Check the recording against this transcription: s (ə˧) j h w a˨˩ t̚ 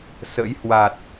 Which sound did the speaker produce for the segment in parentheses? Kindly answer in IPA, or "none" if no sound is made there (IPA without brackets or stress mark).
ə̰˧˥